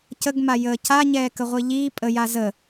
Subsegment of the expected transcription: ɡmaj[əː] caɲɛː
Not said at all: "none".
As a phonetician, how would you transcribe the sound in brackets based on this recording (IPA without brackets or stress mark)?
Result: əː